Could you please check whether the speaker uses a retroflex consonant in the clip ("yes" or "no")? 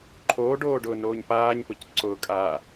yes